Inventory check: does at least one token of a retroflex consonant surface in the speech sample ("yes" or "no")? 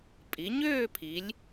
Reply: no